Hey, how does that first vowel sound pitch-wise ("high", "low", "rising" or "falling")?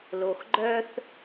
low